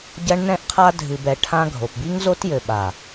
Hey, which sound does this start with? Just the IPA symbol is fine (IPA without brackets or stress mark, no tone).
ɟ